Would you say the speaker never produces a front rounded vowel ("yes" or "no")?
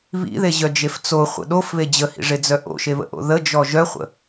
no